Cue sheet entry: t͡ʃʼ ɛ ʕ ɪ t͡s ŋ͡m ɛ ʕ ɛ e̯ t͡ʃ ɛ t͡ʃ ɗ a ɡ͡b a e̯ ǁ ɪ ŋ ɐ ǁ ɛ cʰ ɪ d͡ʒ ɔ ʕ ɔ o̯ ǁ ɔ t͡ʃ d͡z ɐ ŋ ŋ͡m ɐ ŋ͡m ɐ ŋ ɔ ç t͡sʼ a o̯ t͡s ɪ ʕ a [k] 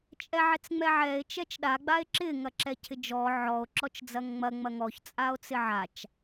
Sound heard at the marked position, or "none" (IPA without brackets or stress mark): t͡ʃ